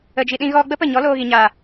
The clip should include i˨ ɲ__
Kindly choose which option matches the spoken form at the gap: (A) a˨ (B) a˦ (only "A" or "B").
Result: A